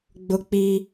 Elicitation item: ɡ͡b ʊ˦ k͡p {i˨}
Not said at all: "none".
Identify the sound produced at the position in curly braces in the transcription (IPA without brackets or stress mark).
i˦